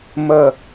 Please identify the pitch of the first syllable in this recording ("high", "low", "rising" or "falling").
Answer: low